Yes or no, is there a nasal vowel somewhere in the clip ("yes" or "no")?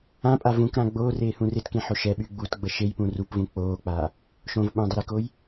yes